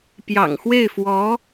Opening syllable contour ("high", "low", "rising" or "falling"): low